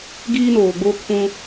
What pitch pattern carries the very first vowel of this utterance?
high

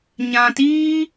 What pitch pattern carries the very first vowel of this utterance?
low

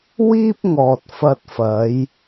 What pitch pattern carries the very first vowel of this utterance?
high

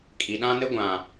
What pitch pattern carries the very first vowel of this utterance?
low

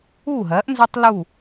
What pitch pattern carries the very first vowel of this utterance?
falling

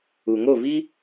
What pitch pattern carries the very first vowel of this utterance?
low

